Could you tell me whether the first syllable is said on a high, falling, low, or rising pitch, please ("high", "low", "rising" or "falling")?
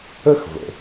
high